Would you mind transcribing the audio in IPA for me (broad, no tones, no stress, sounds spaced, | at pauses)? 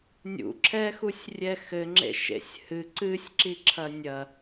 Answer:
nʲ ṵ ǁʰ ɛ x u sʲ rʲ ɛ x ɘ ŋ͡ǁ ḛ ʃ ḛ sʲ h ɨ ǀ ɨ sʲ ǁ i ǁʰ ɐ nʲ ɐ